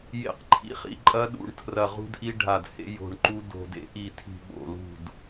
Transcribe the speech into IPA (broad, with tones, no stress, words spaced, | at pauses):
jḛ˧˩q ǃʰḭ˧˩χḭ˧˩ ǃʼɐ˦ɗṵ˧˩ɳ tʰrɐ˧˩ʁṳ˦dʔi˦ɖʱa˧˩d hḛ˦ jo̤˧˩ɳǃu˦ do̤˧˩dḛ˦ ʔi˧˩tʰi̤˧˩ ɓo̰˧˩lṳ˧˩d